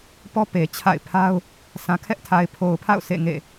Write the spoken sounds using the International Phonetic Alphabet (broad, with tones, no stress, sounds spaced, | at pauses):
p ɔ˦ p e˨ t͡ɕʰ a̰˦˨ ɪ̯ pʰ a˦ ʊ̯ | sʰ ã˨ kʰ ɛ˦ ʔ tʰ a˨ ɪ̯ pʰ o˨ ʊ̯ pʰ a̰˦˨ ʊ̯ sʰ ḛ˦˨ ŋ ḛ˦˨